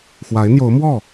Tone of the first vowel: rising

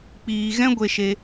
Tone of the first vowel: low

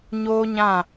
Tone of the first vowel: high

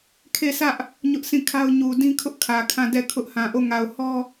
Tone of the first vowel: falling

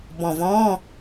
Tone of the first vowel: low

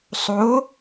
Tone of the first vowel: rising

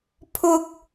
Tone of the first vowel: high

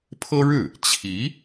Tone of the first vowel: high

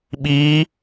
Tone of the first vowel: rising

